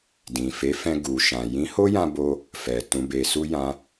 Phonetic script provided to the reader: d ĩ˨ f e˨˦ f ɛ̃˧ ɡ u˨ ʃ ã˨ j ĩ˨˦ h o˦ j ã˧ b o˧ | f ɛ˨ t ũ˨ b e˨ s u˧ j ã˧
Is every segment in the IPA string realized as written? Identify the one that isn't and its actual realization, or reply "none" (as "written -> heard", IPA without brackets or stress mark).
none